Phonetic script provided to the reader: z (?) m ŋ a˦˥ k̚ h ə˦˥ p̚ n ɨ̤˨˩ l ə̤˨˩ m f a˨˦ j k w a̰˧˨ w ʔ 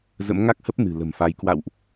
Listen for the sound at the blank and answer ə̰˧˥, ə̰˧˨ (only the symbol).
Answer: ə̰˧˥